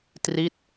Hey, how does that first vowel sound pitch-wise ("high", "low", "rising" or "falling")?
falling